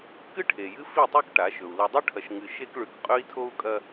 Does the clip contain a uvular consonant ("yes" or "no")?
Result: yes